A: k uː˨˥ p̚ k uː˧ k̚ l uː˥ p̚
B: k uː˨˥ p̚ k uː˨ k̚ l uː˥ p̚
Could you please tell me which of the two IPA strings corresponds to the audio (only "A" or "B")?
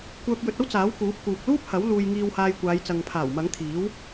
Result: B